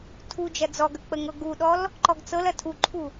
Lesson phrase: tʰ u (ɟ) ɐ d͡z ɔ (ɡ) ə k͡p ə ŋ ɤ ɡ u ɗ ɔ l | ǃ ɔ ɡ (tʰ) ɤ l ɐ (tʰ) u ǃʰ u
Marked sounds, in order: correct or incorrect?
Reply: incorrect: d͡ʒ, correct, incorrect: t͡s, correct

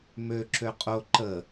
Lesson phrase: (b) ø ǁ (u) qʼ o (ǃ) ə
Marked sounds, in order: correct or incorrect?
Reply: incorrect: m, incorrect: ø, correct

